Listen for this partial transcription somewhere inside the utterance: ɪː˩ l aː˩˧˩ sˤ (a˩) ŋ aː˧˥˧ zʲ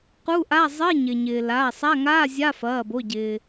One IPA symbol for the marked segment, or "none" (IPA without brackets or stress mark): a˧˥˧